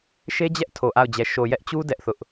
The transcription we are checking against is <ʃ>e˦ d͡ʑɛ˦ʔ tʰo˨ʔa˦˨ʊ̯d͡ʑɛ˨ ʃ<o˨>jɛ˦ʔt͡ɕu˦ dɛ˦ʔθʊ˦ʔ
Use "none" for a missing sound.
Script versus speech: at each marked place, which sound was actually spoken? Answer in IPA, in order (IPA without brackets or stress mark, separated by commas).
ʃ, o˨